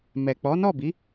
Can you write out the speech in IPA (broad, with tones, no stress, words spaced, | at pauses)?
mɛ˨k͡pɔ˨˦nɔ˦˨bi˨˦